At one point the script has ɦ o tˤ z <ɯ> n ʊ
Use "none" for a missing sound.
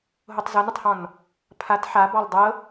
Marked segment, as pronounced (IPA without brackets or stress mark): ɤ